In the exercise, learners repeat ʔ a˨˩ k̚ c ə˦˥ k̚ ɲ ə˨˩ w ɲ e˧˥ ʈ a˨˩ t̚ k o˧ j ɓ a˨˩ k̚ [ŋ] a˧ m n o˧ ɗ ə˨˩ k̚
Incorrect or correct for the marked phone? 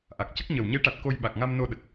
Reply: correct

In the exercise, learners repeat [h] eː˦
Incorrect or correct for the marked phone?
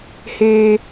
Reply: correct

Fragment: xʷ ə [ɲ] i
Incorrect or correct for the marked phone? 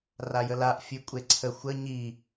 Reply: correct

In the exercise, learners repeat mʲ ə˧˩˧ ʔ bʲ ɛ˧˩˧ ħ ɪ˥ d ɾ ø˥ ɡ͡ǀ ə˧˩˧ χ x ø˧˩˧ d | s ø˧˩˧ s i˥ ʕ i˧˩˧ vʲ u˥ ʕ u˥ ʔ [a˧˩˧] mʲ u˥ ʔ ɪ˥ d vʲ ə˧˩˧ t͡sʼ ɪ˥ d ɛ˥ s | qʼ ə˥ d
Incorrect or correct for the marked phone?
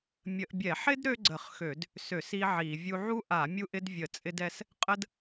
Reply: correct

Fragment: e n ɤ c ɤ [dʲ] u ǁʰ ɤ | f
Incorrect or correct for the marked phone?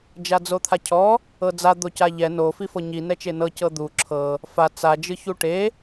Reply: incorrect: d̪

